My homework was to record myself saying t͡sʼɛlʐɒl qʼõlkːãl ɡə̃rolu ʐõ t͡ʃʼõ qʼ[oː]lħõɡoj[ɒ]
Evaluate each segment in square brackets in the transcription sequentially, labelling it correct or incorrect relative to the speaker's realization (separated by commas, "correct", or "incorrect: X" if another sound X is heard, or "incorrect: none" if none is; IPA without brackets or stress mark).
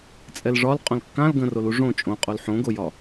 incorrect: o, correct